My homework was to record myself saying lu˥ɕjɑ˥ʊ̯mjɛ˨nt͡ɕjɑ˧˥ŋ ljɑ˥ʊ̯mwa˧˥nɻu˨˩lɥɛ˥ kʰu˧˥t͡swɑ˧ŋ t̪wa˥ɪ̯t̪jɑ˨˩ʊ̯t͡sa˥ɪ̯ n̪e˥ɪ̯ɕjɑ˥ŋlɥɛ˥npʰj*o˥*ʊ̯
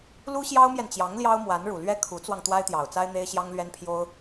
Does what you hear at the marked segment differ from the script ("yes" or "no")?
no